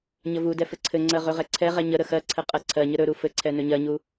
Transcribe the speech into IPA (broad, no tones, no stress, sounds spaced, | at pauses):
ɲ ə v u d ɛ f ɘ ǀʰ ɘ ŋ͡ǀ ɜ ʁ ɵ ʁ ɛ ǀʰ ɛ ʁ ɛ ɲ ə ɾ ə x ɜ ǀʰ ɘ qʼ ɜ ǀʰ ɜ ɲ ə ɾ ɵ ɾ u f ɘ ǀʰ ɛ n ɵ ɲ ɜ ɲ u